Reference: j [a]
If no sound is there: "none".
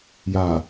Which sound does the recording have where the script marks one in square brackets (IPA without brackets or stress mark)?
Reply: a